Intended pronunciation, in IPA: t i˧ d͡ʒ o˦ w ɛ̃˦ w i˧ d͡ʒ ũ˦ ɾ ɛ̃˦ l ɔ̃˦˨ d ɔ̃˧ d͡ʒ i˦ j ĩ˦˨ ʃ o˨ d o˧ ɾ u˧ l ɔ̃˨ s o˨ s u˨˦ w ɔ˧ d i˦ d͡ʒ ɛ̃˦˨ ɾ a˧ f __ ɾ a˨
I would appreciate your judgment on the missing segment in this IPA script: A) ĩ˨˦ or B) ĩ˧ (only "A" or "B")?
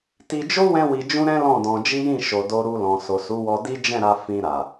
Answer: B